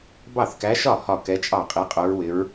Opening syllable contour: falling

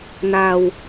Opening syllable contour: low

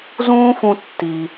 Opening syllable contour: high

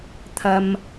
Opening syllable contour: low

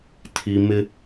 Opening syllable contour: low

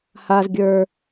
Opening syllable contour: low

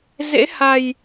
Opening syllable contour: rising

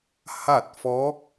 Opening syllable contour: falling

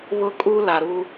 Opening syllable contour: high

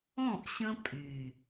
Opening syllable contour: falling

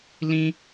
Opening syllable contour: high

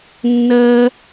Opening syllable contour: high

